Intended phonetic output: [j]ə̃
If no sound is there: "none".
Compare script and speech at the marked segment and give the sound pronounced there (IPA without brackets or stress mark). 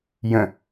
j